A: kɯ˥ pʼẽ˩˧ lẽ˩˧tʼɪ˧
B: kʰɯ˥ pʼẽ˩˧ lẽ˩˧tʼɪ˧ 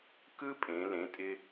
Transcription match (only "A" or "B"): A